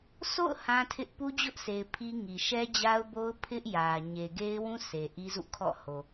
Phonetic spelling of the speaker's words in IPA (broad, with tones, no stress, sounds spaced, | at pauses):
sʰ o̰˦˨ ʊ̯ h ã˦ tʰ ɪ˦ ʔ p u˦ d͡ʑ ʊ˦ ʔ s e˨ ɪ̯ pʰ i˦ ŋ i˨ ʃ ɛ˦ d͡ʑ a˦ ʊ̯ b o˦ ʊ̯ pʰ ɪ˦ ʔ j ä˨ ɲ e˨ ɡ e˦ ɪ̯ w ũ˦ sʰ e˨ ʔ i˦ z ṵ˦˨ kʰ ɔ̰˦˨ h o˨